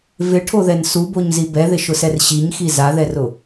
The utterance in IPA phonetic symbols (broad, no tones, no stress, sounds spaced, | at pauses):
v ɪ ʈʰ o ð ɛ n s u b o ɲ z i b ɛ ð ɪ ʃ ʊ s ɛ r ɕ i ɲ x i z a ð ɛ r ʊ